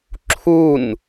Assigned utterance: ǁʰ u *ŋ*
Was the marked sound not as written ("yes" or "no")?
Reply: yes